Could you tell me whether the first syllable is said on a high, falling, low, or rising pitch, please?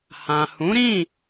low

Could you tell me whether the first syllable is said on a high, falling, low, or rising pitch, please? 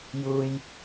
high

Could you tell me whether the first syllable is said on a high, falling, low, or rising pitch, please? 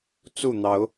falling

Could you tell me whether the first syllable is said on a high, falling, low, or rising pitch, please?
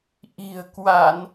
low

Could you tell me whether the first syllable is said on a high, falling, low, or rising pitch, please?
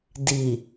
low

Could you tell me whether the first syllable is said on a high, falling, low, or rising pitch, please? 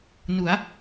rising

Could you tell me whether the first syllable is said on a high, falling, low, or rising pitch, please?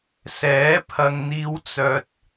rising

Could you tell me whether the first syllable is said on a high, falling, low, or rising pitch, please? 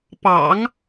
low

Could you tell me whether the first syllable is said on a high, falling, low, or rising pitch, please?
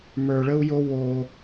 low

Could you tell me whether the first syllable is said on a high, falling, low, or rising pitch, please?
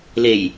low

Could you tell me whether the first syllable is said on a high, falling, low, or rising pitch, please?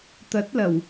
rising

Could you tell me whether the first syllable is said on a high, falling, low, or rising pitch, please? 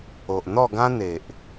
low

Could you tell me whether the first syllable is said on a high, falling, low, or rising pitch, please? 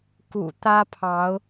low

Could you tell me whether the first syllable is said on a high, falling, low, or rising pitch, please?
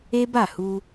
high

